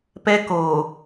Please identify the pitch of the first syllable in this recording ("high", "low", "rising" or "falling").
high